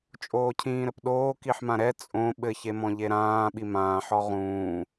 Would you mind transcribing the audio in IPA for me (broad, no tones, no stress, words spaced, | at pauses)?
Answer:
t͡ʃʼoːcʰĩːɾɘpɗoː kiħmãɾɛ t͡sʼõ ɓɘçe mɔ̃ʎeɾãː ɓimãːħɔ ʁũː